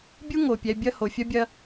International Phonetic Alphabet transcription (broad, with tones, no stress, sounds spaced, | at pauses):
bʲ u˥ ŋ o˩ pʲ ɛ˨ bʲ ɐ˦ h o˩ fʲ ɐ˥ bʲ ɐ˦